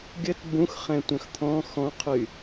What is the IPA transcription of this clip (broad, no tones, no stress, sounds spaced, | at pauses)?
ɡʲ ə t b ũ x χ ɛ̃ tʷ œ̃ x t̪ʰ ɔ̃ x ɔ̃ qʰ y